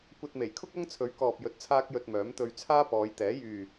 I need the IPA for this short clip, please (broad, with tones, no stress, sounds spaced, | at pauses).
kʷ ɐ˧ t̚ m e˨˩ j kʰ ʊ˥ k̚ ɐ˥ ŋ t͡sʰ ɵ˨˥ ɥ k ɔː˨ p̚ j ɵ˧ t̚ t͡sʰ aː˥ k̚ j ɵ˧ t̚ m œː˨˥ m t̪ ɵ˧ ɥ t͡sʰ aː˥ p ɔː˨˧ j t̪ ɛː˨˥ j yː˨